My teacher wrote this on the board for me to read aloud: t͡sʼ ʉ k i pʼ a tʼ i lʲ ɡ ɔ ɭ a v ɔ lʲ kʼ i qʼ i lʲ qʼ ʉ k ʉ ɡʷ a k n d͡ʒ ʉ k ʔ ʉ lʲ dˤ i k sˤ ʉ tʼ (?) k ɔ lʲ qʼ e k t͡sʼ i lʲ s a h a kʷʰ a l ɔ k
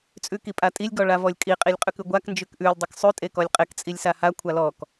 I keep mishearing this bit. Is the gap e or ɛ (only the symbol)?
e